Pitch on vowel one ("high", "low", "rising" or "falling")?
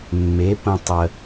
rising